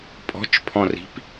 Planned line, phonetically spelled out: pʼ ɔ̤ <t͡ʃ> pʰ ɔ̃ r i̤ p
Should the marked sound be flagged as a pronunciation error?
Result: no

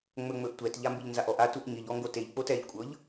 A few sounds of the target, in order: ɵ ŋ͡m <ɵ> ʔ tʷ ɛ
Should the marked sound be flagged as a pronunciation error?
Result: no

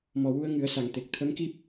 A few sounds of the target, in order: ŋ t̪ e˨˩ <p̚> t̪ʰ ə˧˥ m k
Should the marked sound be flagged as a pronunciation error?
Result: yes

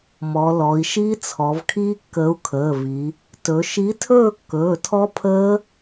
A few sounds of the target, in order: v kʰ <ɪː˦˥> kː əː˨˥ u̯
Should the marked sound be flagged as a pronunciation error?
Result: yes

